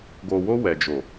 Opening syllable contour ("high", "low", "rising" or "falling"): low